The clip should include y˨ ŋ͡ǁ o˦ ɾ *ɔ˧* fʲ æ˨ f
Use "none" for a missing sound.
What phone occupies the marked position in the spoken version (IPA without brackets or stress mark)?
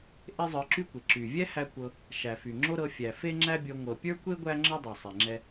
ɤ˧